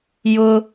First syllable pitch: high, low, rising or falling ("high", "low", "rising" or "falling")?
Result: high